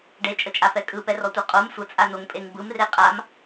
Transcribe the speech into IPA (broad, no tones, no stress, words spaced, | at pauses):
ɖet͡ʃʼət͡ʃʼafɛ kʼɯpɛrɔtʷɛ qʼom sʷət͡sʼanoŋpʼeŋ bɯmre qʼam